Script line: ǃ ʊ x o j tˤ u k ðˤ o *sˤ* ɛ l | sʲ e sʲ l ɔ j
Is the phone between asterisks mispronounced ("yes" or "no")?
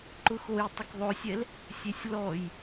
yes